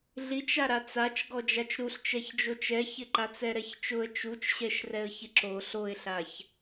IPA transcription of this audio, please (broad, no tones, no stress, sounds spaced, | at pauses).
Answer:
ɮ i t͡ʃ a ɾ a t͡s a t͡ʃ ɡ ɔ d͡ʒ a t͡ʃ ɾ u ɬ t͡ʃ ɛ ç d͡ʒ o t͡ʃ ɛ ç ɪ ǃ a t͡s ɛ ɾ ɛ ç t͡ʃ ʊ ə̯ t͡ʃ u t͡ʃ ɕ ɛ ʃ r ɛ ə̯ ç ɪ ǁ o ɬ o ɪ̯ ɬ a ç